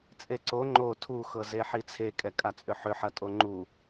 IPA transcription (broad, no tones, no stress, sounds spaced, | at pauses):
t͡sʼ e ǀ o ŋ͡ǃ o tʰ u x ɤ z e ħ i t͡sʰ e kʼ ɛ kʼ a t͡sʼ ʏ ħ ʏ ħ ɐ tʼ o ŋ͡ǃ u